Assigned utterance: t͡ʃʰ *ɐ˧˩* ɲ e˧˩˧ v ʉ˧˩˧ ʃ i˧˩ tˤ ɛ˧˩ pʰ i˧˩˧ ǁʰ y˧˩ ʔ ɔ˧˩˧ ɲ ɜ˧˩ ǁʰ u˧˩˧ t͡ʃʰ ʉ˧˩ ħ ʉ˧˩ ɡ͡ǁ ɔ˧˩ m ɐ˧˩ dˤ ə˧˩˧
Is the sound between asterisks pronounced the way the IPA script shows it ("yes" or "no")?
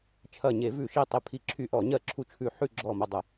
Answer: yes